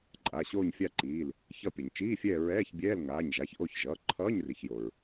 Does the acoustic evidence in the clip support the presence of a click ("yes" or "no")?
yes